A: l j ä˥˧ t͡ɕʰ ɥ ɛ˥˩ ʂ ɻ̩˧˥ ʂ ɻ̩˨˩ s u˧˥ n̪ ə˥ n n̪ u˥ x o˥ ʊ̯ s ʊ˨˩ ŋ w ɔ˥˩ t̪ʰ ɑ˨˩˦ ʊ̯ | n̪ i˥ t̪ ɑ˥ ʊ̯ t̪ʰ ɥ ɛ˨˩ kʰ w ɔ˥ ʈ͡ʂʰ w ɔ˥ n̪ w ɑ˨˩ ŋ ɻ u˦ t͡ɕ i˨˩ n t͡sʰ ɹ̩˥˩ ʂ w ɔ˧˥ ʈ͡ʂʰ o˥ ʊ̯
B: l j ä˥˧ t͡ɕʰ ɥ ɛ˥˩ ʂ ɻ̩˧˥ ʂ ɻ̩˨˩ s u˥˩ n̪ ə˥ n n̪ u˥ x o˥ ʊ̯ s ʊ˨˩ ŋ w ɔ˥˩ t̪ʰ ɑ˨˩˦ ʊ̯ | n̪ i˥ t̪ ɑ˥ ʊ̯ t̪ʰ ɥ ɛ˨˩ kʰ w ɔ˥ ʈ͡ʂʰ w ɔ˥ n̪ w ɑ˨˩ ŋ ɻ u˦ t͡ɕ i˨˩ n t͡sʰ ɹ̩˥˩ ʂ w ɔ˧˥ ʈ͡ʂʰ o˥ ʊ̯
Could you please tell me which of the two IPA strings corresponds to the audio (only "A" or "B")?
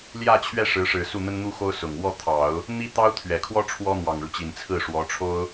B